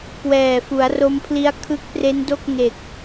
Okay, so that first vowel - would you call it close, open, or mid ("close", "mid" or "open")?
mid